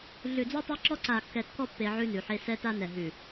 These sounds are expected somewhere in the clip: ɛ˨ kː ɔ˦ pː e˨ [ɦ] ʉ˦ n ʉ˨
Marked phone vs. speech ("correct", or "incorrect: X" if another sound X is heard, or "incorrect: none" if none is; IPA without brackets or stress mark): incorrect: ʕ